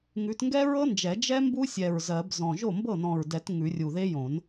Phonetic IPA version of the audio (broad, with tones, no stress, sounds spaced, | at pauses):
ŋ ʉ˨˦ t ŋ ɡ ɛ˦˥ ɹ ɤ˦˥ n d͡ʒ ɛ˨˩˦ d͡ʒ ɛ˦˥ m b u˦˥ sʲ ɛ˧˩ ɹ z ɜ˨˩˦ b z ɔ̃˧˩ ʒ o˥˩ m b ɤ˥˩ n ɔ̃˧˩ ɹ d ɛ˨˩˦ t ŋ ʉ˨˩˦ rʲ u˧˩ ð e˦˥ j õ˨˩˦ n